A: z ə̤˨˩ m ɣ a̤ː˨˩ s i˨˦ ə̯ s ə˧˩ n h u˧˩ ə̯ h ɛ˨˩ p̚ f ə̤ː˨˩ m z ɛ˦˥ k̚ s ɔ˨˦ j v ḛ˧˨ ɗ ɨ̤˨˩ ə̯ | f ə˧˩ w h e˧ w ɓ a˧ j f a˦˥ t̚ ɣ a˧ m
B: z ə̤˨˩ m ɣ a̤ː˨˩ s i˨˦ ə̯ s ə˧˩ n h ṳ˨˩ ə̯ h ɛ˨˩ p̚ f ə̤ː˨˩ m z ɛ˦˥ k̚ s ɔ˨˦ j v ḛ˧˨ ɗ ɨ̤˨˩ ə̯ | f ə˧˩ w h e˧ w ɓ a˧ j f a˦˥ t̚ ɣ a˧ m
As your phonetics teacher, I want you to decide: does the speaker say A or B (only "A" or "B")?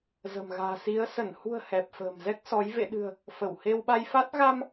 B